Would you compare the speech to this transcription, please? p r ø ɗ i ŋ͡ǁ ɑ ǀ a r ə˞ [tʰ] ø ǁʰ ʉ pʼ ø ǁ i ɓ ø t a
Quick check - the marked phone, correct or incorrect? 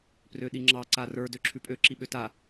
incorrect